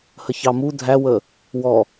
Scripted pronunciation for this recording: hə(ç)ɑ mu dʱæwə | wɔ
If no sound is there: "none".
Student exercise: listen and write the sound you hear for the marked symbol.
ç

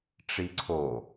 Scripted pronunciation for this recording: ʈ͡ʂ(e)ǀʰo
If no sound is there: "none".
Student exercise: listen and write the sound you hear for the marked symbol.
i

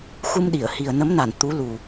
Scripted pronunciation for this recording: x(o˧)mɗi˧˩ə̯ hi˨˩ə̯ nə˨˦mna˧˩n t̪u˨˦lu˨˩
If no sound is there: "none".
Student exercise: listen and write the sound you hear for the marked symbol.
u˧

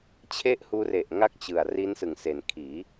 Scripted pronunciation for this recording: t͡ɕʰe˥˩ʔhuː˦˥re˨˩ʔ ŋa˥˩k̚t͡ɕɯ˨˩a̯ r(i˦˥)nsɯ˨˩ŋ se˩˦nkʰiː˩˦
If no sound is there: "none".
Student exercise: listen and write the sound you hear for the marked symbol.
i˦˥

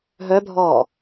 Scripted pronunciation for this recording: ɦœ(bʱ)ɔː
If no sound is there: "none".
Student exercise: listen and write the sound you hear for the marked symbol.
bʱ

